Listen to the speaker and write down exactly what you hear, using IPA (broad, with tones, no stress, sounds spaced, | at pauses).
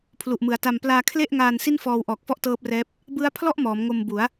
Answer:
pʰ l u˨˩ ʔ m ɯ˩˦ a̯ t a˧ m p l aː˧ kʰ l e˥˩ ʔ ŋ aː˧ n s i˥˩ n f ɔː˧ w ʔ ɔː˨˩ k̚ f ɔ˥˩ ʔ t ɤː˦˥ p̚ r ɛː˦˥ p̚ | b ɯ˦˥ a̯ pʰ l ɔ˥˩ ʔ m ɔː˩˦ m ŋ o˧ m b u˩˦ a̯